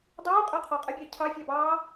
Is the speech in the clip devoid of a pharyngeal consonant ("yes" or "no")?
yes